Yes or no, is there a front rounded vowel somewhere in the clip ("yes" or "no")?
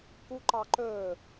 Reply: no